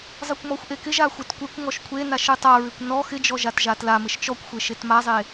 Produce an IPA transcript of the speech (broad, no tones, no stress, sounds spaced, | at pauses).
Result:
zˤ ɨ kʷ m ɔ xʷ ʔ e k ɪ ʒ a xʷ ɪ t kʷ e kʷ ŋ ɔ ʃ kʷʰ e n a ʃ ɨ tˤ a ɹ ɪ kʷ n ɔ x ɪ d͡ʒ ɔ ʒ a t ʒ a t l a m ɪ ʃ t͡ʃ ɔ kʷ xʷ e ʃ e t m a zˤ e